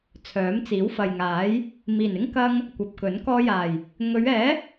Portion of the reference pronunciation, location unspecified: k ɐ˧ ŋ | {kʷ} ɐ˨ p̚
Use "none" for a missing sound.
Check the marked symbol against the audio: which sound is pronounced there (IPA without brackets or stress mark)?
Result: kʷ